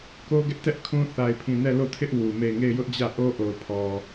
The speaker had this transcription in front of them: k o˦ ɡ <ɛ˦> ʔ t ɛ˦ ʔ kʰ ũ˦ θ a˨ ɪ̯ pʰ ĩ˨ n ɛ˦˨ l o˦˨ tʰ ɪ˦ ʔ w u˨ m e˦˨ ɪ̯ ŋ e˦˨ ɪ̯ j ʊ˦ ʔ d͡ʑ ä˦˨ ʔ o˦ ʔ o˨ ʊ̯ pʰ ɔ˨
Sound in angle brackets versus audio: correct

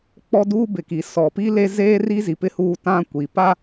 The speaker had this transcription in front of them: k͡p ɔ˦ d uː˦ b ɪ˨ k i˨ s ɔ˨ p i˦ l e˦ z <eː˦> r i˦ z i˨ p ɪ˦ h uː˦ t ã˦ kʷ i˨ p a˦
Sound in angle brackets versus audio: correct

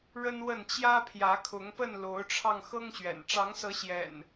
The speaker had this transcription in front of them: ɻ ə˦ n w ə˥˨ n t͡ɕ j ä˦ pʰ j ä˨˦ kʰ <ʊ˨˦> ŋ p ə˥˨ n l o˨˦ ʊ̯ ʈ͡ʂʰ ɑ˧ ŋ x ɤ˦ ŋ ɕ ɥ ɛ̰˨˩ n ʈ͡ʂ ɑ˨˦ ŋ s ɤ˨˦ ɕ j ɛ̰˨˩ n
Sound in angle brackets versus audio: correct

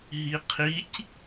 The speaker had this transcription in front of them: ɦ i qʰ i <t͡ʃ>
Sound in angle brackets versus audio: incorrect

